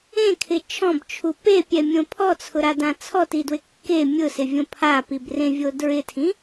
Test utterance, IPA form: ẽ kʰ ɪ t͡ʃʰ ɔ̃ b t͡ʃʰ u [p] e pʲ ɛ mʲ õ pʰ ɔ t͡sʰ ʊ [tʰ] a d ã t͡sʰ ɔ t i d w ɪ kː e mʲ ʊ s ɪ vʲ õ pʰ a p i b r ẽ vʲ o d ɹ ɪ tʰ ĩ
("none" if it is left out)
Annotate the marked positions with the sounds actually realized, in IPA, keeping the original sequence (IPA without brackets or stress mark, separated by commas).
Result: p, ɾ